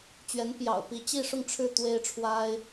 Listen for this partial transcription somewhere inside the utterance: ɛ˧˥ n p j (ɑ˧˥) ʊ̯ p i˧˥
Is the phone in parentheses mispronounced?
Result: yes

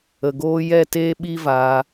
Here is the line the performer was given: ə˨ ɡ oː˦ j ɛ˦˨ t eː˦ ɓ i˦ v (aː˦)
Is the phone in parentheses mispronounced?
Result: yes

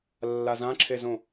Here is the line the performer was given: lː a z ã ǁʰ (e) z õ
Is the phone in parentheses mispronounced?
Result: no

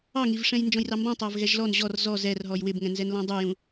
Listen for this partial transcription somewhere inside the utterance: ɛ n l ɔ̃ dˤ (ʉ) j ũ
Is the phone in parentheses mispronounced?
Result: yes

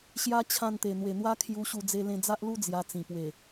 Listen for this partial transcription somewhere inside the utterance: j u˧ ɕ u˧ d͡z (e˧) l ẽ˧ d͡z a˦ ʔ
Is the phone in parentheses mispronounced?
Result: no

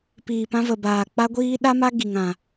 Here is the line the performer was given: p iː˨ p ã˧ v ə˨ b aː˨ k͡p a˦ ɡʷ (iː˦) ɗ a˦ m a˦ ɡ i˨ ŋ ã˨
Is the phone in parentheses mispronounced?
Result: no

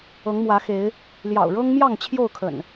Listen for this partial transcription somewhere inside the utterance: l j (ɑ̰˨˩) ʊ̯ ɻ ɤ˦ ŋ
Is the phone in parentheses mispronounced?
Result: no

